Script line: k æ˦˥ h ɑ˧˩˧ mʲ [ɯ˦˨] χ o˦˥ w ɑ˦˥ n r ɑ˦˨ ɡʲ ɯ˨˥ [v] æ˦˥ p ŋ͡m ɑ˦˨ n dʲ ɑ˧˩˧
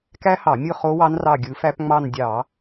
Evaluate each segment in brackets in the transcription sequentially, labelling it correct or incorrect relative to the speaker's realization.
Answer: correct, incorrect

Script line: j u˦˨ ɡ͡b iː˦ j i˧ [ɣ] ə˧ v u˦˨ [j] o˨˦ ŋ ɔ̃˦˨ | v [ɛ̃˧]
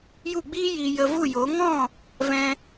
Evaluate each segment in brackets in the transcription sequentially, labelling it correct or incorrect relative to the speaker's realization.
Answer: incorrect, correct, correct

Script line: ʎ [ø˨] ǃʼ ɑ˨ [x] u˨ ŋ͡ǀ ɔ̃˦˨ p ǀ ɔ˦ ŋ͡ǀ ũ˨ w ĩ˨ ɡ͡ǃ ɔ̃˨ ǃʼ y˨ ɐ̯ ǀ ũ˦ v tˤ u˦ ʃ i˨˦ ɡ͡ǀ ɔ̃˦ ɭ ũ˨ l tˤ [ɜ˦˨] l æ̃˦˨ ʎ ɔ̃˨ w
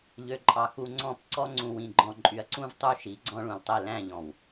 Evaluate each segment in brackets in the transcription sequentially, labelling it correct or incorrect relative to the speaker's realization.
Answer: correct, correct, incorrect

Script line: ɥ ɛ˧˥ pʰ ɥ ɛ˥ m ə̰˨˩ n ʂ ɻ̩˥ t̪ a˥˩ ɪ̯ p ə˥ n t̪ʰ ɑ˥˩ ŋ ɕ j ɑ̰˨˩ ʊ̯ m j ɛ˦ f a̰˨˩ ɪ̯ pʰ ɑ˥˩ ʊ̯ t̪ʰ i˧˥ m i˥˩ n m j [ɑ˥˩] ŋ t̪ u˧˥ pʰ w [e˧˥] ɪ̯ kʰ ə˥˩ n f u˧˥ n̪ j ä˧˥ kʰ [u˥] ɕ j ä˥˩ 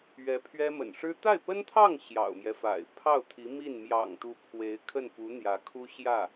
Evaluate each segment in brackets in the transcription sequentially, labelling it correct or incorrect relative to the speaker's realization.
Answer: incorrect, correct, correct

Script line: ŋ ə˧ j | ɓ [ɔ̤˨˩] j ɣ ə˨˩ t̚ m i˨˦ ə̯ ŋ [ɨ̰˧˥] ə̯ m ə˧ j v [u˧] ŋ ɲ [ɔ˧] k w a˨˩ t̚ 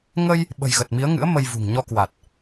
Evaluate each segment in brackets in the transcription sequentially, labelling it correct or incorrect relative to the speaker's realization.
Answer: incorrect, correct, incorrect, correct

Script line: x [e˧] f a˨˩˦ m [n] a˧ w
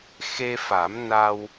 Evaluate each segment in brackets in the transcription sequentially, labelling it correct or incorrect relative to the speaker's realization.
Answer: correct, correct

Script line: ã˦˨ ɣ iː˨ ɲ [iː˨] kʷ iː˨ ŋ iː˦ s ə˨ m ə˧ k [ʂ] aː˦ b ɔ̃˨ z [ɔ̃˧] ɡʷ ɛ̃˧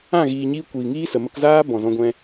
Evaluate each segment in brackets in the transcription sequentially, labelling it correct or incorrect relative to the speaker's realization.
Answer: incorrect, incorrect, correct

